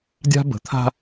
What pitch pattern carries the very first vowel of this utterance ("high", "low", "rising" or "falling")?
high